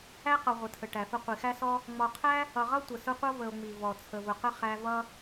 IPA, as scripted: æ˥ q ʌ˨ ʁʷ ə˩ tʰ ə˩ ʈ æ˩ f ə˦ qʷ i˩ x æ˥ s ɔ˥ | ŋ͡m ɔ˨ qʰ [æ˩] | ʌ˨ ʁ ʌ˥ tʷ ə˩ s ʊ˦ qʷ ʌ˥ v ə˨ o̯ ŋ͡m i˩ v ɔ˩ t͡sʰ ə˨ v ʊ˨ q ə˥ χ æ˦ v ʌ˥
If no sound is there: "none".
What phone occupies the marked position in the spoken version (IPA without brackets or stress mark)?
æ˥